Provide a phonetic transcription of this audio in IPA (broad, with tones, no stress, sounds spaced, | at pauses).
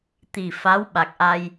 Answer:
t̪ i˨˩ f a˧˥ w ɓ a˨˩ k̚ ʔ a˧ j